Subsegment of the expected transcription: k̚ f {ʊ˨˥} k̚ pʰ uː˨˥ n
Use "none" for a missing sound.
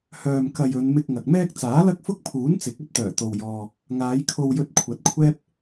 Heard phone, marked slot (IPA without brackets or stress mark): ʊ˥